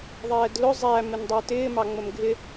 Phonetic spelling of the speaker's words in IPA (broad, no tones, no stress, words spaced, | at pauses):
ðˤɛːdlʊ zˤæ mɪndˤə˞tɪː mɑŋ͡məmɡʱɪ